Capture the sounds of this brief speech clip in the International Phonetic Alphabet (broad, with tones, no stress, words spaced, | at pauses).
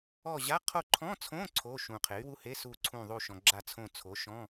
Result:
ɔ˦˨ʑa˧˥˧ qʰo˦˨ǃʰɔ̃˧˥˧t͡sʰõ˧˥˧ ǀʰo˧˥˧ ʃũ˨ qʰe˩˥y̯wu˧˥˧he˧˥˧ su˦˨ǀʰũ˦˨ ðˤu˦˨ʃɔ̃˨ ɡ͡ǁa˦˨t͡sʰõ˦˨ t͡sʰo˩˥ʃɔ̃˧˥˧